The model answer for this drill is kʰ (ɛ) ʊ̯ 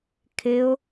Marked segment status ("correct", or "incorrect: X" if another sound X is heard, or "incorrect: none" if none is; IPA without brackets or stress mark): incorrect: ɪ